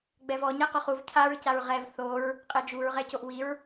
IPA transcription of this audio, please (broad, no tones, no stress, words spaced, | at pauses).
ɡ͡bɛvɔ ɲɛqʊχuv cʰaɹcaɹ ʁɛv θoɹ | qʼed͡ʒuɹʁɛcoʔ wiɹ